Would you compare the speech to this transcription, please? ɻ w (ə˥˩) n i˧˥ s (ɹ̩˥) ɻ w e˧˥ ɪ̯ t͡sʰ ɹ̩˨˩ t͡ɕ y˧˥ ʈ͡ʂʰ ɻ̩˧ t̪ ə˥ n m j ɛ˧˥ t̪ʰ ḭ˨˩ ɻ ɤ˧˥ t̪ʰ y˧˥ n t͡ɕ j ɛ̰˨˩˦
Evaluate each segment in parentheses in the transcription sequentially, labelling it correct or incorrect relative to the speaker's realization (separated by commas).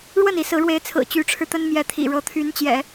correct, incorrect